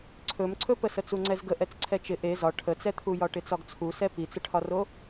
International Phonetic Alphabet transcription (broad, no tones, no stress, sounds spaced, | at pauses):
ǀʰ ɵ m ǀʰ ɵ p ə s ə t͡s u ŋ͡ǀ ɛ z ɡ ə ʔ ɛ t͡s ǀʰ ɛ t͡ʃ ɪ ʔ e z ɒ ʈʰ ə t͡s ɛ t̪ʰ u j ɒ ʈ ɪ t͡s ɒ ɡ t͡sʰ u s ɛ p i t͡s ə ʈʰ ɒ r o